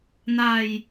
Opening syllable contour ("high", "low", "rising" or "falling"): low